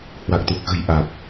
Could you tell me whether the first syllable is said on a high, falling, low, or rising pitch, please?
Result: low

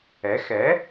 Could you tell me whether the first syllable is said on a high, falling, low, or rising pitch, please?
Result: rising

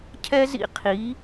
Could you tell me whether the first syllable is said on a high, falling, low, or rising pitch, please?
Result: high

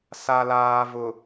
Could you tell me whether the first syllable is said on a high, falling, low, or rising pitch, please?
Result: low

